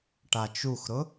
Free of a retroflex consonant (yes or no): no